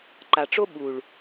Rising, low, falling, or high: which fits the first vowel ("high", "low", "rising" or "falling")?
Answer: low